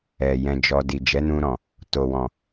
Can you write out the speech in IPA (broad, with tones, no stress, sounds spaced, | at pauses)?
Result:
ɛ˨ j ɛ̃˧ d͡ʒ ɔ˧ d i˨ d͡ʒ ɛ˨˦ n ũ˧ ɾ ɔ̃˨ | t o˨ w ɔ̃˨